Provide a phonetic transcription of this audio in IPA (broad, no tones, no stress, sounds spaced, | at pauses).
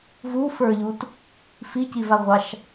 v u f ə˞ ʎ u t | f i c i v a ʁʷ ɑ ʃ